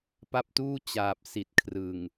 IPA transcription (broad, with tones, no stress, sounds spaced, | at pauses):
p a˦˥ p̚ t uː˥˩ t͡ɕ aː˨˩ p̚ s i˨˩ t̚ kʰ r ɯ˨˩ ŋ